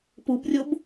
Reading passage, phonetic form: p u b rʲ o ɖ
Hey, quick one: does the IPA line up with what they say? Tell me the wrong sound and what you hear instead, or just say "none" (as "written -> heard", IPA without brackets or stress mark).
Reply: ɖ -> b